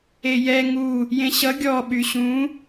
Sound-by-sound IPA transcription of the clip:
e j ɛ ŋ u | j ẽ ɕ ʌ ɡʲ ɔ ɓ y ɕ ũ

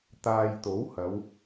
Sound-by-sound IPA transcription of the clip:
t̪ aː˨ j t̪ o˨˥ w h ɐ˨˧ w

